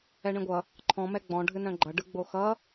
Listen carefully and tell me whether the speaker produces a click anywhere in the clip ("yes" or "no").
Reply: yes